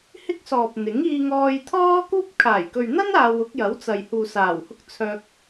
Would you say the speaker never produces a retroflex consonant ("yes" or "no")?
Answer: yes